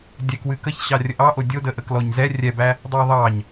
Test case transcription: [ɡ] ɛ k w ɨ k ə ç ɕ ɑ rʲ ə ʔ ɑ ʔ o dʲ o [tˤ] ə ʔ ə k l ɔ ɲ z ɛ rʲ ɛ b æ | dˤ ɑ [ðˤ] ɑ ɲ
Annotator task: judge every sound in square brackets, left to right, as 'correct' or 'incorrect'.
incorrect: dʲ, incorrect: d, correct

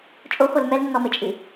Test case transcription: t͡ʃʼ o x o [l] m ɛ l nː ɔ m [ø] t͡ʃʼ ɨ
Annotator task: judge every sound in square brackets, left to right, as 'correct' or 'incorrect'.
correct, incorrect: ɘ

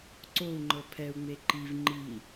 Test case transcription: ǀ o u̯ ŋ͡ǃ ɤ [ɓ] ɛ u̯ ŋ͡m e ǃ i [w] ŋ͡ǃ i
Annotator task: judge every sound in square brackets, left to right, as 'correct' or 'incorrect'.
incorrect: pʰ, incorrect: v

